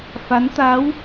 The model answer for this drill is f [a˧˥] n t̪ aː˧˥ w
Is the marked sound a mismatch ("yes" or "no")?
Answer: no